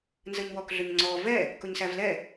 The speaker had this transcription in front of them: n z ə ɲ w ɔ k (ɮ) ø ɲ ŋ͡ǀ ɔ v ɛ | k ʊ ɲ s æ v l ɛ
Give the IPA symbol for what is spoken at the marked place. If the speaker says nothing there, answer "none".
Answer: ɮ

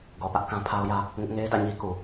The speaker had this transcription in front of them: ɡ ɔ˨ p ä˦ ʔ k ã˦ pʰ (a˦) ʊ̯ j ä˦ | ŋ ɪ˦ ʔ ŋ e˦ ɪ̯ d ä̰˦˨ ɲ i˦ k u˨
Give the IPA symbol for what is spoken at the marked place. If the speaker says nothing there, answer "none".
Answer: a˦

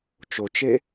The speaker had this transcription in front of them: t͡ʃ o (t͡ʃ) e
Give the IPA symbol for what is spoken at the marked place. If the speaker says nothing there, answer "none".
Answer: t͡ʃ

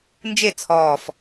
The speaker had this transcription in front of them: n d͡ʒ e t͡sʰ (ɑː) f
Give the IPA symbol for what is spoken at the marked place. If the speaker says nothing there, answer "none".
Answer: ɔː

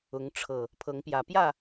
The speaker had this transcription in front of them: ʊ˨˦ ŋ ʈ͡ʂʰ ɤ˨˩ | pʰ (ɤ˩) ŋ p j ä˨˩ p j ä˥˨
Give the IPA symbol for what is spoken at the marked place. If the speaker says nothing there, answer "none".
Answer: ɤ˨˦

